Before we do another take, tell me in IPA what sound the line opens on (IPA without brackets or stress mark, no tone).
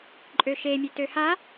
ǃʼ